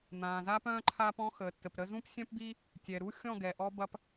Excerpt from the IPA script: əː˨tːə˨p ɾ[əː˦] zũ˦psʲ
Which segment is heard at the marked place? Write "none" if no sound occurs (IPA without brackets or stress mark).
ə˦